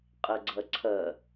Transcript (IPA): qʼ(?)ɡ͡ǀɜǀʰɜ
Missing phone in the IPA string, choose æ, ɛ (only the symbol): ɛ